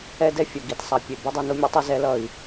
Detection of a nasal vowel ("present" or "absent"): absent